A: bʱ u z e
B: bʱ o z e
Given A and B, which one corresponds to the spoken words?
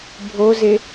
B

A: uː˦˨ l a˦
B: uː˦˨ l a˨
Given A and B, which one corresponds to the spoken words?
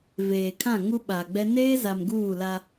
A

